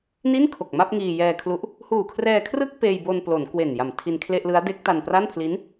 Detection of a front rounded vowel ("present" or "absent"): absent